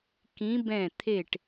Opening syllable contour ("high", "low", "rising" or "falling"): rising